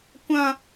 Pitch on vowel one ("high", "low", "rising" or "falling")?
high